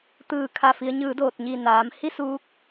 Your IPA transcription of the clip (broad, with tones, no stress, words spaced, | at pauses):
t̪ɯː˧˩ kʰa˧˩fi˩˧ə̯ɲɯː˩˧ doː˧˩t̚ɲi˧˩naː˩˧mhi˥˨ suː˧˥k̚